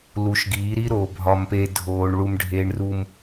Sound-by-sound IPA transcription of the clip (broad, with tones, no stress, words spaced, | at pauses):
lu˨˦ʃɡiː˨˦ɾi˦ɾoː˨ bʱɒ˨mpe˨ dʱoː˨ɳɭu˨m ɖʱeː˨ɳru˨m